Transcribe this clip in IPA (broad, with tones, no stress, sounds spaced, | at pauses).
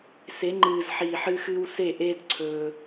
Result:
s e˨˦ ŋ͡ǃ ɨː˨ z ħ iː˨ ħ ɨ˦ x ɨː˦ w s e˦˨ ʔ eː˦ d ǀʰ ɵː˦